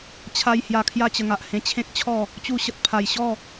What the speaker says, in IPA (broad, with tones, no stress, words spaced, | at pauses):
t͡ɕʰa˦j hja˧kʰja˥˧t͡ɕə˧ŋa˨ʔ hẽ˧t͡ɕʰẽ˦k̚t͡ɕʰɔ˥˧ | t͡ɕu˧ɕə˨t̚ pʰa˨˩jɕɔ˥˧